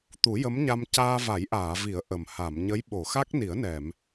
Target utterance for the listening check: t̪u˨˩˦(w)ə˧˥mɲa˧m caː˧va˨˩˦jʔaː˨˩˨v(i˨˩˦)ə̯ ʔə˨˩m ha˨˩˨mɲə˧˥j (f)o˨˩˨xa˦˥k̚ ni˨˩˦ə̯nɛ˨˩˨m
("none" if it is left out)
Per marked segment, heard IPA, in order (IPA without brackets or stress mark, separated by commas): j, i˨˩˦, ɓ